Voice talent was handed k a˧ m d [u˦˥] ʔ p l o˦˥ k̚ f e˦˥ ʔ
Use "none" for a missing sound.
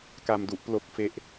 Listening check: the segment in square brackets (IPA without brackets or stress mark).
u˦˥